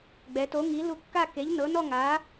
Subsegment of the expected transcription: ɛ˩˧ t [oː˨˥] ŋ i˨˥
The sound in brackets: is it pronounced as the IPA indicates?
no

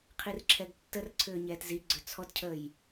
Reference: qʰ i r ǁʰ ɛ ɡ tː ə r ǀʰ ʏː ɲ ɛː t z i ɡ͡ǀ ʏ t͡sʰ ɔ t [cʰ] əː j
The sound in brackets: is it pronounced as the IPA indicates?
yes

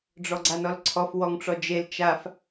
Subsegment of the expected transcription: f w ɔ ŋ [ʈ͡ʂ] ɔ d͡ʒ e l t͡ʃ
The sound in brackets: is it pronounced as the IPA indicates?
yes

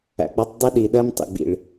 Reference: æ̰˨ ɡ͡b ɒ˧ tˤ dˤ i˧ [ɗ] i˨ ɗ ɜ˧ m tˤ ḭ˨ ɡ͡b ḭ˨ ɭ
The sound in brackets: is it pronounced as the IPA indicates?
yes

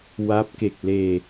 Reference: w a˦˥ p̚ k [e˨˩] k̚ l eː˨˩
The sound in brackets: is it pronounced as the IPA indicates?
yes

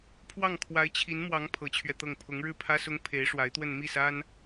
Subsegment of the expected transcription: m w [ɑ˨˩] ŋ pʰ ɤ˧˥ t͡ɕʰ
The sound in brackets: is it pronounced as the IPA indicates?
no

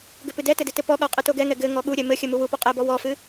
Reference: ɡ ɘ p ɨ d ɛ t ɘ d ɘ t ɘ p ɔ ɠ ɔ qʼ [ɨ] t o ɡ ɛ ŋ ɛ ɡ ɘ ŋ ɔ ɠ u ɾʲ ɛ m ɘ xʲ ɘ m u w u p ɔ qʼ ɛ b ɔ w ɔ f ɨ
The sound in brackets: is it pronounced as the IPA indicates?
yes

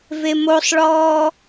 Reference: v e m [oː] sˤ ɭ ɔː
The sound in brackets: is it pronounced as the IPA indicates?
no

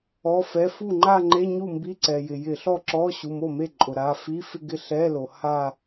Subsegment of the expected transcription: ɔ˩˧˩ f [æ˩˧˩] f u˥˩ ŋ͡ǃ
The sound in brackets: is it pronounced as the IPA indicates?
no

